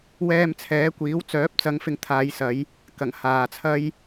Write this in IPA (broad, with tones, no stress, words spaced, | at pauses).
wɛː˧mt͡sʰɛː˨˥kʷiː˨˥w t͡sœː˨˥p̚t͡sɐ˨˧ŋfɪ˨ŋ t̪ʰaː˨˧jsɐ˨˧j | kɐ˨˩ŋ haː˨t͡sʰɐ˥j